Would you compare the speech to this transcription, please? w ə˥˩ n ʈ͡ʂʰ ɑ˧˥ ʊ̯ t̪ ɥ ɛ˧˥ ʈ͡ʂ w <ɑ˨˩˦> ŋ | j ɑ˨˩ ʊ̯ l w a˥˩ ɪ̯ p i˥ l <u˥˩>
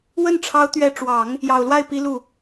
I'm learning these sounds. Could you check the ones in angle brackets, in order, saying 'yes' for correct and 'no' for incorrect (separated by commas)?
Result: yes, yes